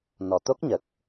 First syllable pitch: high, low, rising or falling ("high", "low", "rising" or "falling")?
low